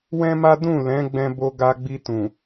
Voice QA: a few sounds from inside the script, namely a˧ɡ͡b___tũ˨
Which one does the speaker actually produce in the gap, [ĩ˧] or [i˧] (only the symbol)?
i˧